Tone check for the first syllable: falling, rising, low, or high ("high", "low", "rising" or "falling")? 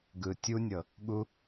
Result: low